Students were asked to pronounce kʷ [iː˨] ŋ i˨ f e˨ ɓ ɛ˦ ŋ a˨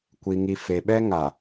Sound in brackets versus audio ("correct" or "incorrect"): incorrect